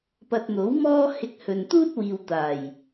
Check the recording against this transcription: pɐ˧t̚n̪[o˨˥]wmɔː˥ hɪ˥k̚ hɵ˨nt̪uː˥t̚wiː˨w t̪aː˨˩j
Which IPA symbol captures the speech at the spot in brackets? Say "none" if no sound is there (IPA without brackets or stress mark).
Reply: o˨˥